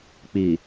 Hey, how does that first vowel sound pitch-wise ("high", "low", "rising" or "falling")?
low